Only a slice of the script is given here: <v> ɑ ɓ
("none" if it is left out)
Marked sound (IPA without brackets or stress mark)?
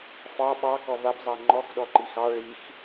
f